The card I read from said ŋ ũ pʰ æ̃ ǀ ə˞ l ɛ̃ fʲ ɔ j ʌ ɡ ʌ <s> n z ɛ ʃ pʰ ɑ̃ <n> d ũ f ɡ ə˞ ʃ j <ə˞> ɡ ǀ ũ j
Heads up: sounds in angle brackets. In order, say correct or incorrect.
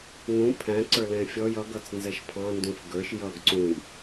incorrect: t͡s, correct, incorrect: ʌ

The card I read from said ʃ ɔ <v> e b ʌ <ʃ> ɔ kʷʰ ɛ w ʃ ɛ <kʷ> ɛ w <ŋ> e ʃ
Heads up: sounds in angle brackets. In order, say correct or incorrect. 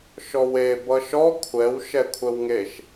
incorrect: w, correct, incorrect: kʷʰ, correct

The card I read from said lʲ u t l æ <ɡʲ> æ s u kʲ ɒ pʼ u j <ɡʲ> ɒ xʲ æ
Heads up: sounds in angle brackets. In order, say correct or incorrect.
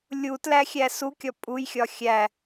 incorrect: xʲ, incorrect: xʲ

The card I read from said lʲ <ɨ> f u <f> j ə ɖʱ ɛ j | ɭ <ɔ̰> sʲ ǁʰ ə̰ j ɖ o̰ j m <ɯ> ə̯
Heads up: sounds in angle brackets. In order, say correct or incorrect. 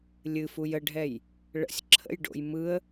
correct, incorrect: none, incorrect: ə̰, correct

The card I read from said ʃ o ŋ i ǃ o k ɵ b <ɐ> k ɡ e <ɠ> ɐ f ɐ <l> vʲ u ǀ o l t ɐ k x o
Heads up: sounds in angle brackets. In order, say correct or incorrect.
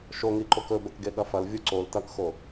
correct, correct, correct

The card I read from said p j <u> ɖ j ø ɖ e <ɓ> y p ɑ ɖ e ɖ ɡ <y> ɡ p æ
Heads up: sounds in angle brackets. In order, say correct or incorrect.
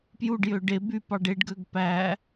correct, incorrect: b, incorrect: ø

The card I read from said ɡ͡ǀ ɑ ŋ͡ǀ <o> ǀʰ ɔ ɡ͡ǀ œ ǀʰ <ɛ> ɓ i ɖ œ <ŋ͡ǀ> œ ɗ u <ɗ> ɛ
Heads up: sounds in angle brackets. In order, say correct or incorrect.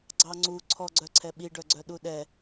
incorrect: u, correct, incorrect: ɡ͡ǀ, correct

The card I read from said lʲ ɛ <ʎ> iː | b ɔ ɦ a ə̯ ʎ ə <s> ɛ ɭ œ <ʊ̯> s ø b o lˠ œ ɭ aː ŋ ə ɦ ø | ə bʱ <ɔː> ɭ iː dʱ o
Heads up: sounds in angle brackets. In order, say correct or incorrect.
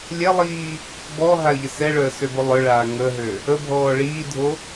incorrect: lˠ, correct, incorrect: ə̯, correct

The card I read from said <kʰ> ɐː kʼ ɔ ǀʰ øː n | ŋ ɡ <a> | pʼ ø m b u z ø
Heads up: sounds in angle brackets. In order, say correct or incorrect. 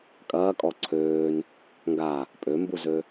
incorrect: kʼ, correct

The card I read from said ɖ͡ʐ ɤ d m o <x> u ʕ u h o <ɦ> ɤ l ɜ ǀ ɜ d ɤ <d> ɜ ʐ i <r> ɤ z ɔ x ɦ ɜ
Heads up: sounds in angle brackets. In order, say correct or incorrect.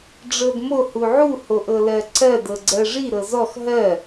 incorrect: h, incorrect: ʔ, incorrect: ɡ͡ǀ, incorrect: ɾ

